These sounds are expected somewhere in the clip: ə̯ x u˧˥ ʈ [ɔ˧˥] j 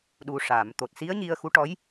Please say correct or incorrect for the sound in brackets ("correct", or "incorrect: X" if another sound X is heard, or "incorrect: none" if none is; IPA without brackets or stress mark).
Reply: correct